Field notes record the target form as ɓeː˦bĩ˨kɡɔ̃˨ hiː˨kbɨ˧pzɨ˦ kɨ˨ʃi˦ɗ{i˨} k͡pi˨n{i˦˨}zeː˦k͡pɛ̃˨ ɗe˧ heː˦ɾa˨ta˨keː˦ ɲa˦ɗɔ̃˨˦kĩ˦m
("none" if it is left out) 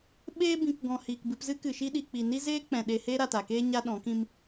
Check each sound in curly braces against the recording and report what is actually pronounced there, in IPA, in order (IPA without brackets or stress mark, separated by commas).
i˨, i˦